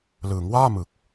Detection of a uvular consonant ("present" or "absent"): absent